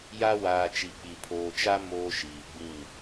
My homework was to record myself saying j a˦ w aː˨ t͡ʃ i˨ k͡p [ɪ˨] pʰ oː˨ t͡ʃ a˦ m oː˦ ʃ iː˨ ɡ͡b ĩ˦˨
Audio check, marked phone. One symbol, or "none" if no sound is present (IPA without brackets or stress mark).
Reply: i˨